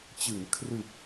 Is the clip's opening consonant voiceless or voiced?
voiceless